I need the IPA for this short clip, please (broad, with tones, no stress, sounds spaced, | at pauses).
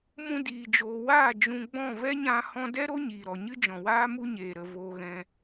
m ũ˧ d iː˨ d͡ʒ oː˨ w aː˦˨ d͡ʒ ũ˧ ɡ͡b ɔ̃˦˨ v ɛ˦ ɲ ã˧ h ɔ̃˦ d ɛ˦ ɾ o˦ ɲ iː˨ ɾ ɔ˨ ɲ ɨ˦ d͡ʒ ɔ̃˨ w aː˦ m u˦ ɲ eː˨ ɾ ə˧ v oː˦ ɣ ɛ̃˦